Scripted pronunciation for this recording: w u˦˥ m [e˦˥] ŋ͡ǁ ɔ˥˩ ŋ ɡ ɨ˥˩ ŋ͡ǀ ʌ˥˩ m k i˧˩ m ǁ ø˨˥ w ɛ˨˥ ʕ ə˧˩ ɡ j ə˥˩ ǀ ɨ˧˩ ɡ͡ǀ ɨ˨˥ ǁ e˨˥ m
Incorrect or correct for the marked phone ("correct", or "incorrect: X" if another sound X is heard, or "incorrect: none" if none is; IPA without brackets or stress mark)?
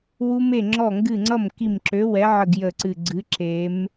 incorrect: e˥˩